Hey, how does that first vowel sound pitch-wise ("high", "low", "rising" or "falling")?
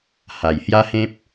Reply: low